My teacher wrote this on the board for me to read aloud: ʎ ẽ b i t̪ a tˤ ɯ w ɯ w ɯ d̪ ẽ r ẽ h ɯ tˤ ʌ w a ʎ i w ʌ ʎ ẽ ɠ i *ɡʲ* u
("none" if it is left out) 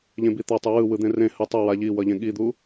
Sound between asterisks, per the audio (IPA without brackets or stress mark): d̪